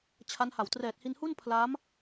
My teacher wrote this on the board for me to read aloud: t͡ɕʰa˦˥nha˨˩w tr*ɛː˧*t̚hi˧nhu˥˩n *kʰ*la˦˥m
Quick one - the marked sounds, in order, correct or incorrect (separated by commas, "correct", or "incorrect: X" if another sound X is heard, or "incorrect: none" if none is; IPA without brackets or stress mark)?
incorrect: ɛː˨˩, incorrect: pʰ